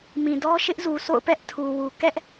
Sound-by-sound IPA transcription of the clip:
mĩ˨dɔ˦ ʃɪ˦ʔzu˨sʰo̰˦˨ʊ̯ pɛ˦ʔ tʰu˨wu˨ kɛ˦ʔ

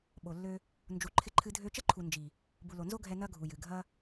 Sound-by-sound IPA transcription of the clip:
ɓo˨lːø˧ | nd͡ʒu˨ǃʰɪ˧ǃʰɨ˧ dʱø˧t͡ʃə˦ǃʰu˨ nd͡ʒi˨ | bu˨lo˨nzo˦ɡʱɛ˧ nɐ˦ɡʱu˨jɨ˨ ɡʱɐ˦

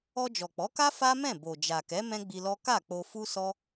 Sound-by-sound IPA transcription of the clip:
ɔ˧d͡ʒɔ˨k͡pɔ˨˦ka˦ fa˦mɛ̃˦˨bo˨ d͡ʒa˨kɛ˨˦ mɛ̃˦ɡ͡bi˧lɔ˦ ka˦˨k͡po˧ fu˦sɔ˦

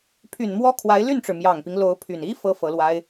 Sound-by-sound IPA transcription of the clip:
pʰy˨˩nmwɔ˥ kʰwa˧˥ɪ̯ly˥˩nʈ͡ʂɻ̩˩ mjɑ˨˩ŋpi˦ŋ lo˧˥ʊ̯pʰy˨˩n i˥ fɤ˥ fɤ˧˥lwa˥ɪ̯

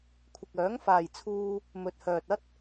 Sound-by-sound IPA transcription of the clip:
kʷʰɪ˨k̚œː˨˥ŋfaː˨jt͡sʰuː˧ | mɵ˨t̚hœː˨t̚ɐ˥t̚

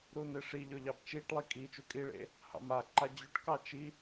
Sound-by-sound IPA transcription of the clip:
ɾuneʂiʎɵ ʎɑbt͡ʃiʈlˠi kʼi t͡ʃukʼiɭḛ | hɑ̰maǃa d͡ʑʉʈkɑ t͡ʃi

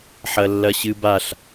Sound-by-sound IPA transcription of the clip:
ħɐlːɐɕɨbaɬ

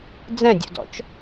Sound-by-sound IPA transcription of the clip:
d͡zɛ̃dʲṵdɔ̰t͡ʃ

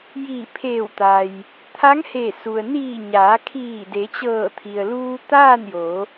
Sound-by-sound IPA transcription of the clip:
jiː˧˩pʰeː˧˩wt̪a˩j | t̪ʰa˧˥ŋhe˧˩su˩ə̯ niː˧˩ ɲaː˩˧kʰiː˧˩ de˩˧t͡ɕɤː˧˩t̪ʰi˩ə̯ luː˧t̪aː˥˨njo˩˧

